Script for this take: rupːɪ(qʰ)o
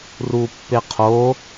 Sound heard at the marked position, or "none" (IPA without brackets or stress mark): qʰ